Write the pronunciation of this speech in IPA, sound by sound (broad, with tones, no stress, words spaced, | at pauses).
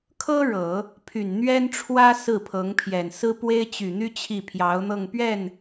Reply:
kʰɤ˥ ɻɤ˨˩˦ | pʰy˨˩nn̪ɥɛ˥nʈ͡ʂʰwä˥ sɹ̩˥˩pʰɤ˧˥ŋpʰjɛ˨˩n sɹ̩˥pwe˥ɪ̯t͡ɕy˨˩n̪y˥ t͡ɕʰi˥˩pʰjɑ˧˥ʊ̯n̪ɤ˥˧ŋ pɥɛ˥˩n